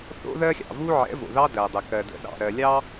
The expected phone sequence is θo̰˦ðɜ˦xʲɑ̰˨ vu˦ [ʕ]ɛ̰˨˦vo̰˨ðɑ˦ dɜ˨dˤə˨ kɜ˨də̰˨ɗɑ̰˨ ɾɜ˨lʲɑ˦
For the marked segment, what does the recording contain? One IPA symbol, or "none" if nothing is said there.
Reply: ʕ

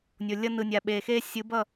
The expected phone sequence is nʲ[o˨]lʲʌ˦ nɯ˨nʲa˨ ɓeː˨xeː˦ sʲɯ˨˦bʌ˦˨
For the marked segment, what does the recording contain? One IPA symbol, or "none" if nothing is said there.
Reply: o˨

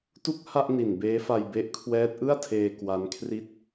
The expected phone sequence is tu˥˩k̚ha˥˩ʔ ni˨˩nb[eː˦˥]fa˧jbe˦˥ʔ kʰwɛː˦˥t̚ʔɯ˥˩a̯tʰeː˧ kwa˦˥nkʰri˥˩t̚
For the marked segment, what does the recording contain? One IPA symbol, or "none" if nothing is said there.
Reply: eː˦˥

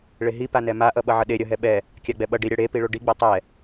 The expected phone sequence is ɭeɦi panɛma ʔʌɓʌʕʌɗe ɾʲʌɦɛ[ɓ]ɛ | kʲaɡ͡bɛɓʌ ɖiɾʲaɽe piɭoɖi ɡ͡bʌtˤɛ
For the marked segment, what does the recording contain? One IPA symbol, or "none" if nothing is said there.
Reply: ɓ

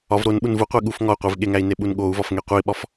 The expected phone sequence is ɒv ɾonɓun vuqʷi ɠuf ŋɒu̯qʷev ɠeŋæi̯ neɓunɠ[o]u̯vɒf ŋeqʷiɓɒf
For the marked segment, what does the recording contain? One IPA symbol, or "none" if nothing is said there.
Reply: o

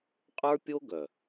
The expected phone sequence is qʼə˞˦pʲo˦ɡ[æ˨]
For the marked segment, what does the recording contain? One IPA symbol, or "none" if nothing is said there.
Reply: œ˨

